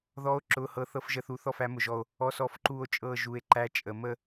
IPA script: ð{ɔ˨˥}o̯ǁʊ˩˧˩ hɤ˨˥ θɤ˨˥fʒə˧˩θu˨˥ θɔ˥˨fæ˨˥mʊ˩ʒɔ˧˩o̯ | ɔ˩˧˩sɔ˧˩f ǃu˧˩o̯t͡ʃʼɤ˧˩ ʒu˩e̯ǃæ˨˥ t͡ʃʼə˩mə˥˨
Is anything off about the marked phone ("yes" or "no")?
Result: no